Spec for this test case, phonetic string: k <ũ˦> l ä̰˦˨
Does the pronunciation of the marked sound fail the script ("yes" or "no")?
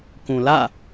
yes